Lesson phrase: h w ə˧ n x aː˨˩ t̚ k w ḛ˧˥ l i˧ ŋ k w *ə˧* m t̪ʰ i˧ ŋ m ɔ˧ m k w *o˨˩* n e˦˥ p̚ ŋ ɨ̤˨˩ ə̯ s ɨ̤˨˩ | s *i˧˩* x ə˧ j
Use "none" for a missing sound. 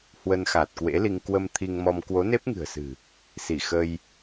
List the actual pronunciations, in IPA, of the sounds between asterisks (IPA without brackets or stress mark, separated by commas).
ə˧, o˨˦, i˧˩